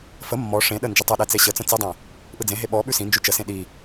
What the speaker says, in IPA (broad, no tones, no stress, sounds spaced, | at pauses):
f ə mː ɔ ʂ ẽ ɗ ə n d͡ʒ ə tˤ ə ɗ ɛ t͡s e ɕ ə t͡s ə̃ t͡s i dˤ ẽ | ʔ ɯ d͡z ẽ ɦ e ɓ ɔ ɓ ʉ s ĩ n d͡ʒ ʉ t͡ʃ ə s ẽ ɗ i